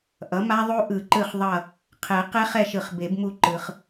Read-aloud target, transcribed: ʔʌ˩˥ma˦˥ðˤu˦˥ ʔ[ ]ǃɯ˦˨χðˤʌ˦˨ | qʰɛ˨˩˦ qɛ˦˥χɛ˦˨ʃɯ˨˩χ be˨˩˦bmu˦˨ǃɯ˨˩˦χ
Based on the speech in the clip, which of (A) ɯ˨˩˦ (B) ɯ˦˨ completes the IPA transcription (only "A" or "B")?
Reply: A